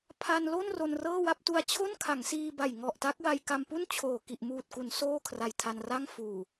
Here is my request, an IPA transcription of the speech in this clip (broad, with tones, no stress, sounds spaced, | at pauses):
pʰ a˧ n l o˥˩ n r o˧ n r ɤː˥˩ w a˥˩ p̚ t u˦˥ a̯ t͡ɕʰ o˥˩ n kʰ a˩˦ ŋ s iː˧ b a˨˩ j ŋ ɔ˨˩ ʔ t a˦˥ k̚ w a˧ j k a˧ m p u˥˩ n t͡ɕʰ oː˨˩ k i˨˩ ʔ m uː˨˩ t̚ k u˩˦ n s oː˥˩ kʰ r a˨˩ j tʰ a˧ n r a˥˩ ŋ f uː˨˩